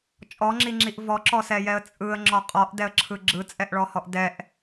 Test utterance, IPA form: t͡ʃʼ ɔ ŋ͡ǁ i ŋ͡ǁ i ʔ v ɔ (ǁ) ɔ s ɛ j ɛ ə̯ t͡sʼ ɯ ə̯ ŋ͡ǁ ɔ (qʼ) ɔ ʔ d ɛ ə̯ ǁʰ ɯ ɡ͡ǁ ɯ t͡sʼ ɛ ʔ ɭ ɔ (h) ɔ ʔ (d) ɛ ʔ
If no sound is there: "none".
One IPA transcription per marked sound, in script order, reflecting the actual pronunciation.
ǁ, qʼ, h, d

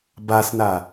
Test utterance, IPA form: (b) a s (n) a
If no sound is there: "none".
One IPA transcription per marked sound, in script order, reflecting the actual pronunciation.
b, n

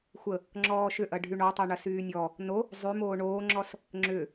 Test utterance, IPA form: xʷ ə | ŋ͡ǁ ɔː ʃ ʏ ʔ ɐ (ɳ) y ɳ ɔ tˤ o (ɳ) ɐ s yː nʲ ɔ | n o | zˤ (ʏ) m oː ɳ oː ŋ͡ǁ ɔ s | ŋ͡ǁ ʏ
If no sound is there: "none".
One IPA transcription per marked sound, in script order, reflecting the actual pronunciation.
ɖʱ, ɳ, y

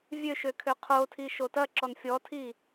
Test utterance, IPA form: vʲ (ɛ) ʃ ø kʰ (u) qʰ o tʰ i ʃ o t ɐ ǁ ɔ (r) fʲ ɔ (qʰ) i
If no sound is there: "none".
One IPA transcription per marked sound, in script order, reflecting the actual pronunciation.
ø, ø, n, tʰ

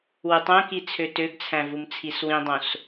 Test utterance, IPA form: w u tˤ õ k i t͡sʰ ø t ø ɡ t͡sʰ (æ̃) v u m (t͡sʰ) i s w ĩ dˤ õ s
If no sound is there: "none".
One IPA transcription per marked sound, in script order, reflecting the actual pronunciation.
æ̃, t͡sʰ

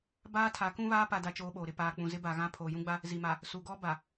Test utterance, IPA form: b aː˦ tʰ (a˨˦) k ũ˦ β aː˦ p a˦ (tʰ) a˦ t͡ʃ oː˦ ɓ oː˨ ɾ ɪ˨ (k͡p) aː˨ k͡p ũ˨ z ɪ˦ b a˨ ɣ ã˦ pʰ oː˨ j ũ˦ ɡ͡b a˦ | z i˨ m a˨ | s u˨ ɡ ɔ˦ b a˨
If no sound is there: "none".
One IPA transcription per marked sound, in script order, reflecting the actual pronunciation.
a˨˦, d, p

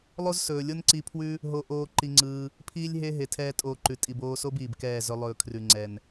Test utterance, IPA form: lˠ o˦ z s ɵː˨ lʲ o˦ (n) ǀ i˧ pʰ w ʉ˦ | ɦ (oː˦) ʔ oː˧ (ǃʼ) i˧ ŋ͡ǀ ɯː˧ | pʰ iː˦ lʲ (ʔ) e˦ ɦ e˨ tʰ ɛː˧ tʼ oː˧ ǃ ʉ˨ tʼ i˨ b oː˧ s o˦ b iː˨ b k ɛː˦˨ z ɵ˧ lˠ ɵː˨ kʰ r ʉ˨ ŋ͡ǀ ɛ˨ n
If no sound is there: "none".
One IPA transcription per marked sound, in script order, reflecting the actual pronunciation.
n, o˦, ǃ, ɦ

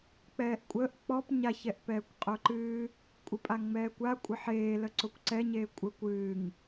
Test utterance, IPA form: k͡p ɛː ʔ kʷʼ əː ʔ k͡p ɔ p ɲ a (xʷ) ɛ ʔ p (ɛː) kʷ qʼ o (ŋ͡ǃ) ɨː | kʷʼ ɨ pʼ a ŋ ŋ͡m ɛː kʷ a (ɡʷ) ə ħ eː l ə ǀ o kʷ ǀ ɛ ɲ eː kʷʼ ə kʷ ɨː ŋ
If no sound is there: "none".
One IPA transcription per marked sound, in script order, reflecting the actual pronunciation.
ç, ɛː, ǃ, kʷʼ

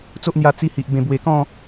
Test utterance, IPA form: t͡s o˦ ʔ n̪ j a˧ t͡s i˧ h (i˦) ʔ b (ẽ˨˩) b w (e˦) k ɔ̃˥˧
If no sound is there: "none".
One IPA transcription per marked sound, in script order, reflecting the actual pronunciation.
i˨, ẽ˨˩, e˨˩

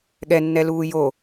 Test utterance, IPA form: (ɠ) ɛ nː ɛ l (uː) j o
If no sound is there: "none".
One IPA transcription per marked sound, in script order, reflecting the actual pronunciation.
ɠ, uː

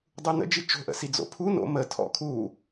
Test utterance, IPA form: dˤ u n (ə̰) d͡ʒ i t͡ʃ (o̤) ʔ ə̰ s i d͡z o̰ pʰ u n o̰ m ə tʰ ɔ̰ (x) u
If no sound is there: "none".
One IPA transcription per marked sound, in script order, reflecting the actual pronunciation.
ə̰, o̤, kʰ

